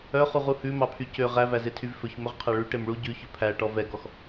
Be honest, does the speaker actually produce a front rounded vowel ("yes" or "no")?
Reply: yes